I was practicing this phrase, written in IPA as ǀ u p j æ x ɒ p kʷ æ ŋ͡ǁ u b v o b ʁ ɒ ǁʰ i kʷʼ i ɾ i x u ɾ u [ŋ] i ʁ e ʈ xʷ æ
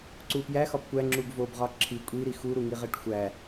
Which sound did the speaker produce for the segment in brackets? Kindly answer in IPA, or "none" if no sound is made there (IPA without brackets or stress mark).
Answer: ŋ